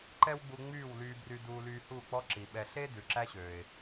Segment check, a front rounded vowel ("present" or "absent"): present